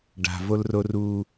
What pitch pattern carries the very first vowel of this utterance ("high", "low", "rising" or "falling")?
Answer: low